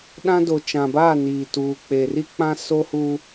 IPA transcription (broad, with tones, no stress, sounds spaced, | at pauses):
ɗ ã˦ d o˨ t͡ʃ ã˨ b aː˦˨ n iː˨ t uː˨ k͡p e˨ r i˦ k͡p ã˦ s o˦ h u˦